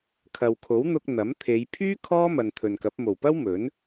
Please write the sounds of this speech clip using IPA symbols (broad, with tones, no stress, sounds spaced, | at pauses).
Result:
kʰ ɐ˨ w kʰ o˨˥ w n̪ ʊ˧ k̚ n̪ ɐ˨˥ m t̪ʰ e˨˧ j pʰ yː˥ kʰ ɔː˥ m ɐ˨ n t̪ʰ ɵ˨ n k ɐ˨˥ p̚ m o˨˩ w p ɐ˥ w m ɵ˨˥ n